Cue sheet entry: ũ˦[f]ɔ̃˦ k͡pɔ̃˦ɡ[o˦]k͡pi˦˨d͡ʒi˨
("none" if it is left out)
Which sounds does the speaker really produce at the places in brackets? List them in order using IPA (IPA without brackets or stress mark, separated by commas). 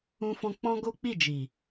f, o˦